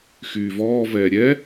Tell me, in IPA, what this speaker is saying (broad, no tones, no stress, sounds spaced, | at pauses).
x yː v ɔː v ɛː ɾʲ ɛ